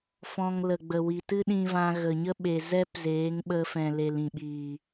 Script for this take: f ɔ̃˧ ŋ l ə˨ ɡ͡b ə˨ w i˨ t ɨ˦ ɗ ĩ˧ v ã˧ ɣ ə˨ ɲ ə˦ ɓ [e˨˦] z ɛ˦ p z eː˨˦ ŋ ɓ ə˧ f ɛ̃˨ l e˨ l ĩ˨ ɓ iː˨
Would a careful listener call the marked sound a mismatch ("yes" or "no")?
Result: yes